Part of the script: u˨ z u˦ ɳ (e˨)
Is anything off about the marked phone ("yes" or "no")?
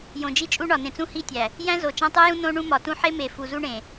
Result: yes